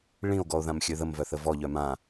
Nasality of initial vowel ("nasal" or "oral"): nasal